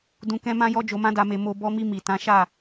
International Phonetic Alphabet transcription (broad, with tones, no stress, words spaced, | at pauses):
dũ˧kɛ̃˦mã˦jɔ˦ d͡ʒo˧mã˦da˧me˧ mo˧ bɔ˧mi˧ mi˨tã˨˦ʃa˦˨